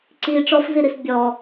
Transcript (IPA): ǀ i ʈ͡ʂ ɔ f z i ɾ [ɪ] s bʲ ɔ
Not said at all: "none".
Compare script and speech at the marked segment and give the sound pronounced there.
i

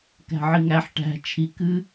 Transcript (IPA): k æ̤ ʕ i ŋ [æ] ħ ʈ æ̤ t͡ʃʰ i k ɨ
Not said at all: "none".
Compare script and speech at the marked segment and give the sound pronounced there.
æ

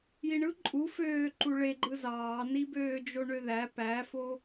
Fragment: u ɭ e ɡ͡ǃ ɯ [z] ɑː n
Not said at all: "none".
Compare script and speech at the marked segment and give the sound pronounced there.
z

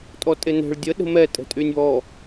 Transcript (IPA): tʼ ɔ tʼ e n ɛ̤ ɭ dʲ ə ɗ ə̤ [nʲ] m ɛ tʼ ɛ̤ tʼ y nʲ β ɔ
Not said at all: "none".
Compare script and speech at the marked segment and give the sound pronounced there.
none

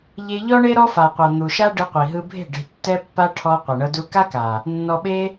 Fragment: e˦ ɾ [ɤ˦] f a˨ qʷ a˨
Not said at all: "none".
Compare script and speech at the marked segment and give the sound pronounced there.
ɔ˦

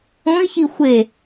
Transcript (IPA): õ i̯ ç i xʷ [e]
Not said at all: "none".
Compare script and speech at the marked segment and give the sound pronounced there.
e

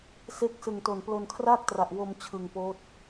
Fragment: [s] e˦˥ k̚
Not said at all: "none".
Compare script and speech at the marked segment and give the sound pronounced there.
s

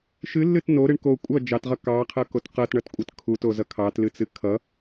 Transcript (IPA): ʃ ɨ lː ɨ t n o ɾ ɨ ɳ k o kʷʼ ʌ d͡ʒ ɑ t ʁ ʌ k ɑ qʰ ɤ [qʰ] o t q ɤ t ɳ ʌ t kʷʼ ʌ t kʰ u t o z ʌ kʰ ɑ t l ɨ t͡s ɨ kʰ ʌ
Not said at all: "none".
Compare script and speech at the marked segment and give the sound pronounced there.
k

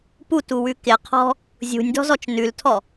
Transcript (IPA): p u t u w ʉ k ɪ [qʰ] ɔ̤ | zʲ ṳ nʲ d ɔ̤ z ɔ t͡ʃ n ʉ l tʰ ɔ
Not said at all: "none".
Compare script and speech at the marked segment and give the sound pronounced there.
qʰ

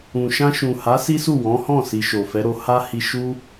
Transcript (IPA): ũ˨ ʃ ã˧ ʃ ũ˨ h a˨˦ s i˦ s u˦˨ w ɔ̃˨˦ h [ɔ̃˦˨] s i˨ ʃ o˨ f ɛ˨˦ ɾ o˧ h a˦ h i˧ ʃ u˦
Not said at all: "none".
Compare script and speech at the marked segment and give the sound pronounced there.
ɔ̃˦˨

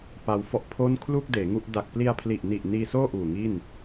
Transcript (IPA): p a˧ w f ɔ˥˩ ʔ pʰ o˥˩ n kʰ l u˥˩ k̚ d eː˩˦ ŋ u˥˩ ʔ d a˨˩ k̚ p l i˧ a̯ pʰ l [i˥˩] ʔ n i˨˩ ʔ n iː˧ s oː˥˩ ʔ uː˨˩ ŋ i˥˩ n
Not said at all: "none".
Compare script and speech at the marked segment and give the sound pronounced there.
i˨˩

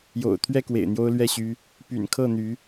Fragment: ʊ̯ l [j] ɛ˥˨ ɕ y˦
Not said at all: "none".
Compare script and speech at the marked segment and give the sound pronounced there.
ɥ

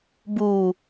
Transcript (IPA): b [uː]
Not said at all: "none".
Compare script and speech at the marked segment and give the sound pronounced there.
uː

